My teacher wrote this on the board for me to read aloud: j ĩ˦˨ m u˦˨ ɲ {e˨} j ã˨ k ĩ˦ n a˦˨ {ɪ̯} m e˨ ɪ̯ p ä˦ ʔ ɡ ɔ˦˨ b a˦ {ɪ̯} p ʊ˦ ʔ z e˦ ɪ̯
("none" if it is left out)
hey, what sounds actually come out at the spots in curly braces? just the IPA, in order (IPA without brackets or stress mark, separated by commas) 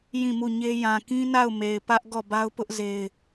e˦, ʊ̯, ʊ̯